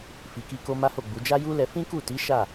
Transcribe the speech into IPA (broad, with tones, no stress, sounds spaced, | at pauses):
f i˨ k i˧ k o˧ m a˦ h o˦˨ ɡ͡b u˨˦ d͡ʒ a˦ j u˦ l ɛ˧ f ĩ˦ k u˦˨ t i˨˦ ʃ a˦˨